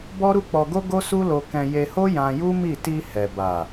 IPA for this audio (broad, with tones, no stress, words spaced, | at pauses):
bɔ˦ɾu˦k͡pɔ˧ɡo˦ ɡo˦su˦lo˧kɛ̃˧ je˧ho˦ jã˧ju˦mi˦˨ ti˧hɛ˨ba˨